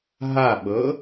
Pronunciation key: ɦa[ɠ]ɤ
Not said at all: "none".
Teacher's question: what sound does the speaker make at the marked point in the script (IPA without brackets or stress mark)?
ɓ